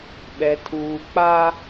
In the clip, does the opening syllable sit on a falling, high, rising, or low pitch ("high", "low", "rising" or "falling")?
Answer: low